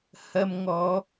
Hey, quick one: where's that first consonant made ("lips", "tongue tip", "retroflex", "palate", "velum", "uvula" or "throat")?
throat